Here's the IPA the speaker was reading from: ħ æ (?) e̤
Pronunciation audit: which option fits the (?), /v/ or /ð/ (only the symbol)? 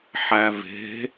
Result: v